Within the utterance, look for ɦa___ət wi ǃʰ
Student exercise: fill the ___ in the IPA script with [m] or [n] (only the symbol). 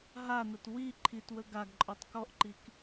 n